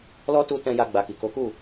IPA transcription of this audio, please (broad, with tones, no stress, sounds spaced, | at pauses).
l ɔ˦ t u˧ t ɛ̃˧ j a˧ ɡ͡b a˨ k i˨ k o˨˦ k u˦˨